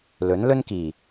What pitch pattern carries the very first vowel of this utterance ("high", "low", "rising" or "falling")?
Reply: rising